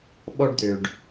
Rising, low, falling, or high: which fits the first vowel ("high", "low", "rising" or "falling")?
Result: high